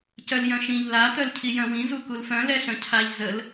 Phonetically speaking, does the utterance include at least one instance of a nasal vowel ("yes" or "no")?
yes